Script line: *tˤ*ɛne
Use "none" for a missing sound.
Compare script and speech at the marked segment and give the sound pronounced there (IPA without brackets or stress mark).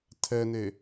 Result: tʰ